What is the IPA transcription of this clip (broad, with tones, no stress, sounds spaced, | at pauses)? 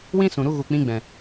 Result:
w ĩ˦ s ũ˨ ɾ u˧ ɣ u˨ k͡p ĩ˧ ɡ͡b ɛ̃˨